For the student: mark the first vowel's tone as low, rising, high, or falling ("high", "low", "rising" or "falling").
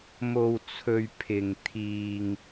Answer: low